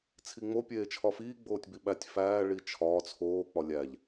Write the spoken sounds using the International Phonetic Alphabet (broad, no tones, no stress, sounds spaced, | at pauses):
t͡sʰ i ŋ͡m o pʲ eː t͡ʃʰ ɒ f iː ɡ͡b oː tʲ b i ɓ æ tʲ f æː ɭ i t͡ʃʰ ɒː t͡sʰ oː k͡p ɒ lʲ æ ʎ